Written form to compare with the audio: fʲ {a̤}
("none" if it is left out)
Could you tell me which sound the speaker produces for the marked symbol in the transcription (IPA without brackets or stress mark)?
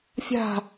a̤